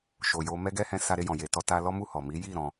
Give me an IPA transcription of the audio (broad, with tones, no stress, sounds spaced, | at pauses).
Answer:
ʃ o˨ j o˧ m ɛ˦ ɡ ɛ˦ h ɛ̃˧ s a˧ ɾ e˧ j ɔ̃˨ j e˨ t ɔ˧ t a˧ l ɔ˦ m u˦˨ h ɔ˨ m i˨˦ j i˦˨ ɾ ɔ̃˧